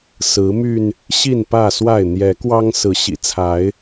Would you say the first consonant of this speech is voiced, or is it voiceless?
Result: voiceless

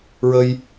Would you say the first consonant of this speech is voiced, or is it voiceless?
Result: voiced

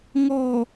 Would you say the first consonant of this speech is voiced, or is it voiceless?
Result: voiced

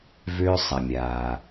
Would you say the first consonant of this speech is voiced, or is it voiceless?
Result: voiced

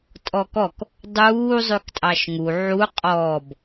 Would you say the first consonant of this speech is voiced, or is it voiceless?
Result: voiceless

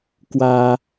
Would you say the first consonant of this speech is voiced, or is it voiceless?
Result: voiceless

